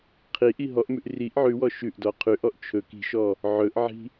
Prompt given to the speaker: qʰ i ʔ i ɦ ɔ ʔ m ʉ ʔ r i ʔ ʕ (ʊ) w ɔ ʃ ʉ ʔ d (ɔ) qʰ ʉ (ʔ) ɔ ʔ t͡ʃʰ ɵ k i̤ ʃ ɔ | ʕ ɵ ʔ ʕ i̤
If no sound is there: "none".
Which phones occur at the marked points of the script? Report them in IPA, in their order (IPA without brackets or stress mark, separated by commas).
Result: ʉ, ɔ, ʔ